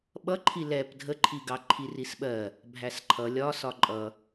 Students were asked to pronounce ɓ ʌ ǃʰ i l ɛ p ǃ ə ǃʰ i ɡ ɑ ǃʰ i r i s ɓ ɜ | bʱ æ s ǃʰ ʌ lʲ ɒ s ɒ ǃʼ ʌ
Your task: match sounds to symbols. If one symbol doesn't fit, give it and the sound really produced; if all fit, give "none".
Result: ǃ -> dʱ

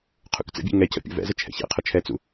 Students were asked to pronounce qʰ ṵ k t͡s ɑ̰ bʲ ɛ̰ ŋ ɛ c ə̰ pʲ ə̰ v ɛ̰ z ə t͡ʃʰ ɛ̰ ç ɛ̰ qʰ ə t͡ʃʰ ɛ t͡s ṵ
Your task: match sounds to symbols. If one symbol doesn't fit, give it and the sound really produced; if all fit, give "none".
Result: ɑ̰ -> ə̰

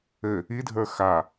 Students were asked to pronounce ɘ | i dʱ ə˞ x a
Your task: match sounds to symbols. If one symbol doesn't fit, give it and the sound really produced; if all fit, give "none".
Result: none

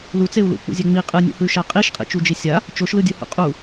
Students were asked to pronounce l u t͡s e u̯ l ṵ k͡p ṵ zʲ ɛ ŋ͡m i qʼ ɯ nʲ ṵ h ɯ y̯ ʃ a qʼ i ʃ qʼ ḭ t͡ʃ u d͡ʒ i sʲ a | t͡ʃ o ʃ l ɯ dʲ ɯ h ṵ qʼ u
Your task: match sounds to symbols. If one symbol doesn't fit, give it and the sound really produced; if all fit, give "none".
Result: none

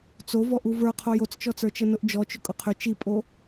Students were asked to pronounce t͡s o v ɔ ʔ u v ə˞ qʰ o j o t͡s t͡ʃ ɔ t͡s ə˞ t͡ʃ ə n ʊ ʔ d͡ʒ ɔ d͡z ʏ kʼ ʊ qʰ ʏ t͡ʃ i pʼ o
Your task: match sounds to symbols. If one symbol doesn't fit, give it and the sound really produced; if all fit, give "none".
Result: d͡z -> t͡ʃ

